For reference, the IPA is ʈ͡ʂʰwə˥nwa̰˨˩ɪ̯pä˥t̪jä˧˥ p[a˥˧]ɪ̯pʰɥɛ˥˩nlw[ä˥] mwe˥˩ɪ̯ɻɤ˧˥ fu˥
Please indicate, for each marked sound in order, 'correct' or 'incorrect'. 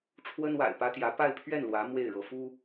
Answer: correct, incorrect: ä˧˥

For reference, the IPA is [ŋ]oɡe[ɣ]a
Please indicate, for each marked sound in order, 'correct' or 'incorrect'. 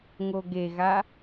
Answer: correct, correct

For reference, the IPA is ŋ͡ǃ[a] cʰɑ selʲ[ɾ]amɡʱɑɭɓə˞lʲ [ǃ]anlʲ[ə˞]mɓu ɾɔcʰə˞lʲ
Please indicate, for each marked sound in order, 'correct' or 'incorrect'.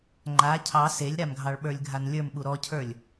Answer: correct, correct, incorrect: ɡʱ, correct

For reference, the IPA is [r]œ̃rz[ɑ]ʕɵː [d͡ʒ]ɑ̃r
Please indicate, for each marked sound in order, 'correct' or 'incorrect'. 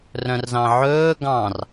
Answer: correct, incorrect: ɑ̃, incorrect: ɡ

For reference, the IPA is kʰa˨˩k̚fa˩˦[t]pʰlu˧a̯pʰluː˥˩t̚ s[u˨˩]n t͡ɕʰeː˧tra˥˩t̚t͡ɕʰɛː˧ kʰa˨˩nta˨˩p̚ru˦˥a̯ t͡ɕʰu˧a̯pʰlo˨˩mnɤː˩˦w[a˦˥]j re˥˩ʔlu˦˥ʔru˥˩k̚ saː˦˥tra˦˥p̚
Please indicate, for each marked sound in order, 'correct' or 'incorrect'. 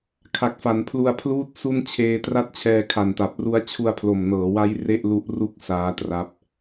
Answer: incorrect: n, incorrect: u˥˩, correct

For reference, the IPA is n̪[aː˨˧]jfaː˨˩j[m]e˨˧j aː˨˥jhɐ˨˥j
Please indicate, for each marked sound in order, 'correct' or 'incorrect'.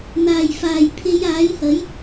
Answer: incorrect: aː˨˩, incorrect: pʰ

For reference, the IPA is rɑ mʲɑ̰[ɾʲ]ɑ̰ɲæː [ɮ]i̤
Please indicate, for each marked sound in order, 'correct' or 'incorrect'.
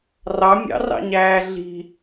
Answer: incorrect: r, correct

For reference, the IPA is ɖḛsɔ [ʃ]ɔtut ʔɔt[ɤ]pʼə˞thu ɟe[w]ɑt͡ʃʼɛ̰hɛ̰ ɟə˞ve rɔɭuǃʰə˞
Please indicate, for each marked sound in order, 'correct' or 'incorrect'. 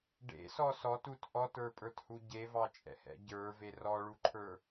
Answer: incorrect: s, incorrect: ə˞, incorrect: v

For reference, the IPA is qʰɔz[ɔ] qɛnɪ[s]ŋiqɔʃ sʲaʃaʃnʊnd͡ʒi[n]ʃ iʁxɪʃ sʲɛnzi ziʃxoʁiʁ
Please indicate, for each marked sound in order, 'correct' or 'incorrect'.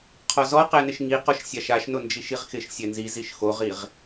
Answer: correct, incorrect: ʃ, incorrect: none

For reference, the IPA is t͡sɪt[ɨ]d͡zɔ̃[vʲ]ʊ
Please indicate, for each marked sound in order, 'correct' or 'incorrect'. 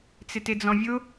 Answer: incorrect: ɪ, correct

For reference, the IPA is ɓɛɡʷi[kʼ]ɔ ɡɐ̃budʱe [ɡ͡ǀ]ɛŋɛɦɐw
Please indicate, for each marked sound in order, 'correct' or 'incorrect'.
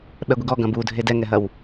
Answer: incorrect: ɡ, incorrect: d

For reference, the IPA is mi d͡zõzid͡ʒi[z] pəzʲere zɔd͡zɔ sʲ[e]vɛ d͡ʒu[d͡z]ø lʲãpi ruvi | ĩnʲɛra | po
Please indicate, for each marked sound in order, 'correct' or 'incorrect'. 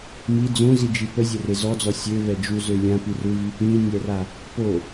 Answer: incorrect: none, incorrect: ø, incorrect: z

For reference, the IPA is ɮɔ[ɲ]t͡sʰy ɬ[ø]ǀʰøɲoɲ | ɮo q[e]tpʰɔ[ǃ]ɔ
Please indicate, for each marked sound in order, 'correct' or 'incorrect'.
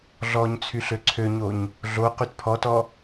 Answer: correct, correct, incorrect: y, incorrect: t

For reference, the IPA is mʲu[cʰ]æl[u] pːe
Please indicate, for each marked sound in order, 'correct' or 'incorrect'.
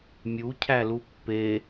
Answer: correct, correct

